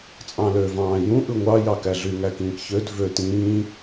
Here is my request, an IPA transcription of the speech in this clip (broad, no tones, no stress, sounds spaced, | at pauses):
t͡sʼ ɑ̃ l ø v ɑ̃ː j ũ ʔ ɯ ŋʷ ɑ j ɑ k æ ɮ y ŋ æ k ĩː k ç ø d v ø t ĩː